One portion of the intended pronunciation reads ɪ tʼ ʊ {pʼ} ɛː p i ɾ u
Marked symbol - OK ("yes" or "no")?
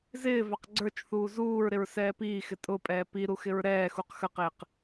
yes